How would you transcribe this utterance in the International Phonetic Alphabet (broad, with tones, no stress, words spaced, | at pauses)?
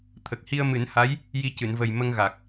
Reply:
t̪ʰə˨˩k̚hi˧ə̯mɨ˨˩˦nha˧˥j | ji˧cɨ˨˩˨nvə˨˩j mə˧ŋɣa˨˩k̚